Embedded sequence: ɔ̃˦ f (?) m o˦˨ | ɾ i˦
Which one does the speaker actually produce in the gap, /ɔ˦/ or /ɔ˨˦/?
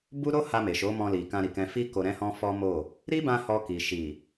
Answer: ɔ˦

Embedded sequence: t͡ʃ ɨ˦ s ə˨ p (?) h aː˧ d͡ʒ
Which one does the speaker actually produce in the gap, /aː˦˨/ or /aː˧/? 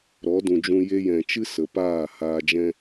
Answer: aː˦˨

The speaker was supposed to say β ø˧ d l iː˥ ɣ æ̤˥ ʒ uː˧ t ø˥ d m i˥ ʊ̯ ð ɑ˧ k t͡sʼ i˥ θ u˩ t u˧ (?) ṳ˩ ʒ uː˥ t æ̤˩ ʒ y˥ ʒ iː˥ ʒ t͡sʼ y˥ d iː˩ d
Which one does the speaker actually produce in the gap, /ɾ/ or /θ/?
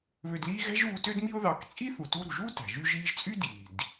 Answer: ɾ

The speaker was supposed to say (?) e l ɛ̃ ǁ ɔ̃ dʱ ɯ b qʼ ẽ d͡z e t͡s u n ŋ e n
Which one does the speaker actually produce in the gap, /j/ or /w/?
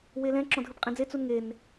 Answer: w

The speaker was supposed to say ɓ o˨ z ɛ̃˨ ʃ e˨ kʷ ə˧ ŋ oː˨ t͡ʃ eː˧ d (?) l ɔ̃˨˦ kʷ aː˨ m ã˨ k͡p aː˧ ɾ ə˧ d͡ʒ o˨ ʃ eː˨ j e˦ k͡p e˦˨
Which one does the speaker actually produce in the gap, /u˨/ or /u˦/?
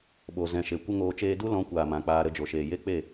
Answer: u˦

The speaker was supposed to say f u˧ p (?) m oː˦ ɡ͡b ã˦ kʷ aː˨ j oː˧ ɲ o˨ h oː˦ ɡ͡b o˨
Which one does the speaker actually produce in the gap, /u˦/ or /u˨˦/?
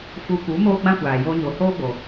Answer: u˨˦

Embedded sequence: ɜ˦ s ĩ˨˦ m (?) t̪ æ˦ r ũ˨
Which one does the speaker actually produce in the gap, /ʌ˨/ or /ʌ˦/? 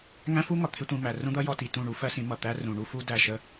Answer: ʌ˨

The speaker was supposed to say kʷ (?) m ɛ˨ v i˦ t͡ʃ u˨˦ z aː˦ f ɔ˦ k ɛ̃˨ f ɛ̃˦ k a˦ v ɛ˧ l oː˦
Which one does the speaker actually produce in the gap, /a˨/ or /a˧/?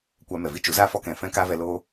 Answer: a˧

